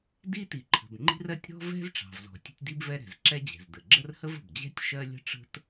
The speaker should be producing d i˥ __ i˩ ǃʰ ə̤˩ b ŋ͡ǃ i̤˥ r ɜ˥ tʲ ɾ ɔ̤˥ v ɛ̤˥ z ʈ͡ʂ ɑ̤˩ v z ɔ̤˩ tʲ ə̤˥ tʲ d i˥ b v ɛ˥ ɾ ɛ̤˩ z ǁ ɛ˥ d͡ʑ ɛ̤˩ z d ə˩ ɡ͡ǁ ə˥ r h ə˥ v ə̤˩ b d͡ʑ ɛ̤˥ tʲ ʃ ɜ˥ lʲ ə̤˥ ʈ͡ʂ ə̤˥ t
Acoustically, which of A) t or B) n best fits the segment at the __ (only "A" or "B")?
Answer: A